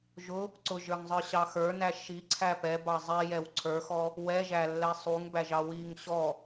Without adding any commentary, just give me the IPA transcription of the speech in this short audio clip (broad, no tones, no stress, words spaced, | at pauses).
ʒʊ | ǀʊʒə˞ŋzˤə˞ɕɑ xə˞næ ʃiǀʰæ pɛbɑ zˤijɛw ǀʰə˞xɔ | wɛʒælːɛ sˤuŋbæʒɑ wiŋ ɕɔ